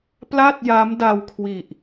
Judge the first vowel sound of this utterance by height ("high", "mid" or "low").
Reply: low